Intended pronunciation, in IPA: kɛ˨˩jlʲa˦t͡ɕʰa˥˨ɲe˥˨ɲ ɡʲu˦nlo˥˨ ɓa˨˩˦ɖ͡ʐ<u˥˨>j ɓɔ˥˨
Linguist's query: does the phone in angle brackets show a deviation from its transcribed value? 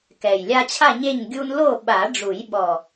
yes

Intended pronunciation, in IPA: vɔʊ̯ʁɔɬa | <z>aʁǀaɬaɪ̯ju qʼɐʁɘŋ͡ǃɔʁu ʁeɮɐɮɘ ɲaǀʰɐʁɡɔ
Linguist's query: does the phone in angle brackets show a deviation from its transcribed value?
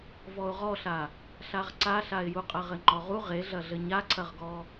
yes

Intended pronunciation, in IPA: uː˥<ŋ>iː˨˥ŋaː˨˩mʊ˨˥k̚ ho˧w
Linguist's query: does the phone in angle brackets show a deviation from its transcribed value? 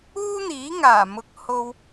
yes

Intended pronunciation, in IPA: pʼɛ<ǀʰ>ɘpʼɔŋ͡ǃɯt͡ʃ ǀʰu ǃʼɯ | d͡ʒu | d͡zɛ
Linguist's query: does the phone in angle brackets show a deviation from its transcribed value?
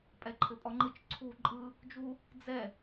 yes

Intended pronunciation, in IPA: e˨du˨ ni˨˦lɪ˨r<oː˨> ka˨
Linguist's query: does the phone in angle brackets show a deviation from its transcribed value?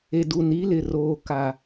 no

